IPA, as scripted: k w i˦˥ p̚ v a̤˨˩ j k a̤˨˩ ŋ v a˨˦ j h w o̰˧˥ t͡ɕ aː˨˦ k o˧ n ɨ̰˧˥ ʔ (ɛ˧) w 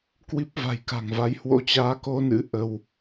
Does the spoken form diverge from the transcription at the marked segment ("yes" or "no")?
yes